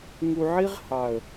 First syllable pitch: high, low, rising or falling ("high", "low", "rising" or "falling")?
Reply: low